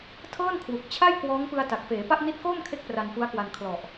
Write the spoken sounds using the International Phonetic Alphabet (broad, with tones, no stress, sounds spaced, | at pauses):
tʰ ɤː˥˩ n kʰ w u˨˩ k̚ t͡ɕʰ a˥˩ j k w ɔː˦˥ ŋ p ɯ˧ a̯ t a˨˩ k̚ f eː˩˦ p a˥˩ ʔ n i˦˥ t̚ k oː˥˩ m kʰ e˥˩ k̚ p r a˧ n p u˦˥ a̯ k w a˧ n kʰ l ɔ˨˩ ʔ